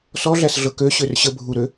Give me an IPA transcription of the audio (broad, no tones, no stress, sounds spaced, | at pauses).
s ɔ ɮ æ s ɮ ɤ k ø ɕ ø r ɕ ə bʱ u ɾ ø